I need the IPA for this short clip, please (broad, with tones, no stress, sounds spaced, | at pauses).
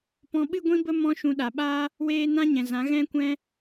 p ɔ̃˨ ɓ ɨ˧ ɡʷ ĩ˧ b ə˧ m ɔ̃˦ ʃ ũ˧ ɗ a˨ ɓ aː˦ | w eː˧ n ã˦ ɲ ɛ̃˨ z ã˨˦ ɣ ɛ̃˧ kʷ ɛ̃˧